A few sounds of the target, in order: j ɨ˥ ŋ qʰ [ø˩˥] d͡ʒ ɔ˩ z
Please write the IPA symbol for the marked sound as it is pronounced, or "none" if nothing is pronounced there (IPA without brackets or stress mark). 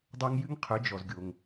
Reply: ø˩˥